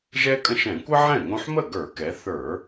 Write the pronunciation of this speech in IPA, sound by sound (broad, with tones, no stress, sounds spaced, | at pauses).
ʒ ɛ˥ kʼ ə̃˥˩ ʃ ɛ̃˧˩˧ kʷ ə˥ ʕ ɛ̃˥˩ ŋ õ˧ ħ m ə˥˩ ɡ ə˞˧˩˧ k ɛ˩˧ θ ə˞˧˩˧